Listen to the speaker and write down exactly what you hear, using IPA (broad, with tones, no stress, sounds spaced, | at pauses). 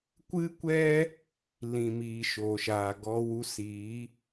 kʷ ɨ˦ kʷ ɛ˦ | l ĩ˨ m iː˨ ʃ o˨ ʃ aː˨ ɡ ɔ˧ w u˧ s iː˨˦